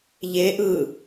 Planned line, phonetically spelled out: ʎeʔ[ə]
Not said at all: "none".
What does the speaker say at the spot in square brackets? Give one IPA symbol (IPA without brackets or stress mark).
ɯ